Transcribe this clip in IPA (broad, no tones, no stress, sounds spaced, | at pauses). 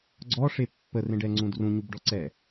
ɡ͡ǀ ɔ ʂ e pː ə r ẽ ɖ ɛ ŋ͡ǀ ũ d r ũ ɲ u b ɖ ɔ ǀ ɛ